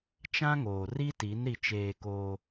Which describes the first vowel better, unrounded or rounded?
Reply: unrounded